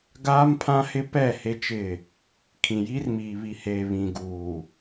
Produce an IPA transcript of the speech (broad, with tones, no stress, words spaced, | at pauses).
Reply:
ɡaː˦mpʰã˦hɪ˦ pɛ˦˨ he˦t͡ʃɪ˦˨ | kʰĩ˨jiː˦rmiː˨ βi˨heː˨ βĩ˨ɡuː˨